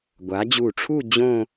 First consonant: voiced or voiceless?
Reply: voiced